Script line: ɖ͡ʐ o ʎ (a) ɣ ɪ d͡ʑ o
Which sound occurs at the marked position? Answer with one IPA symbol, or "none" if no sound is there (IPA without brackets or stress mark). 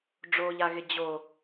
a